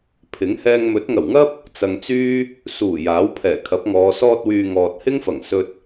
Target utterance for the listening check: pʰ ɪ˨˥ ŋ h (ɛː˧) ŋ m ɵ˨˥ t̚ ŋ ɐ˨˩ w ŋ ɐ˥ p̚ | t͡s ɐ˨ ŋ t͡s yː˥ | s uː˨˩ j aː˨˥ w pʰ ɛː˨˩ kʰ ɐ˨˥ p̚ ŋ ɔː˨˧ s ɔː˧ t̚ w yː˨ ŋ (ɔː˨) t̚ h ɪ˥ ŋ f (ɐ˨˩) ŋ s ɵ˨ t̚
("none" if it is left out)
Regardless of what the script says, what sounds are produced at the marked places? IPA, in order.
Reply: ɛː˧, ɔː˨, ɐ˨˩

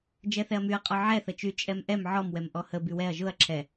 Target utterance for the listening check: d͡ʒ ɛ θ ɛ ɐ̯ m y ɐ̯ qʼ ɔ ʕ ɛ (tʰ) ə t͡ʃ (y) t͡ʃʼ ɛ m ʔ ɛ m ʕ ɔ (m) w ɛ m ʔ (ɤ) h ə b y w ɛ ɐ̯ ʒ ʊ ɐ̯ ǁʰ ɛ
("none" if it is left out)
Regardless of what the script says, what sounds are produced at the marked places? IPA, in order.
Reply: θ, y, m, ɔ

